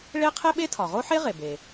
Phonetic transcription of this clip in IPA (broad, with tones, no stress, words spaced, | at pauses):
ɭe˥ qʰe˥ɓe˥ tʰɒ˩ʁo˥ħe˥ʁe˩ be˩